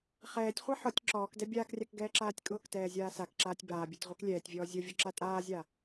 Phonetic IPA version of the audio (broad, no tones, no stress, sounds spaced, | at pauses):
χ ɛː tʲ χʷ a ħ ɔ tʲ ǁ ɔː k d ɛ bʲ aː k rʲ a k ɡ ɛː ǁ aː tʲ kʼ ʊː k t ɛː zʲ aː s a k ǁ aː tʲ b aː bʲ a tʲ ʁʷ ɛ k lʲ ɛː tʲ vʲ ɔː zʲ ʊ vʲ ʊ ǁ a tʼ aː zʲ a